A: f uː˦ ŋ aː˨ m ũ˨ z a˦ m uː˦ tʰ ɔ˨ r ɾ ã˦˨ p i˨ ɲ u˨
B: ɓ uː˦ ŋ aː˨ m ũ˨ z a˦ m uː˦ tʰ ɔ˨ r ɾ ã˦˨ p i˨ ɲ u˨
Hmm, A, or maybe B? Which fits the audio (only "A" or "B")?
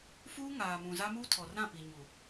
A